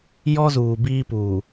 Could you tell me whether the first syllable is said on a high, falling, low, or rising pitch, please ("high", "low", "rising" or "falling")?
high